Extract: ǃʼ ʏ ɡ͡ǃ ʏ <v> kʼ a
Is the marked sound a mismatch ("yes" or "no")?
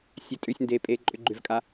no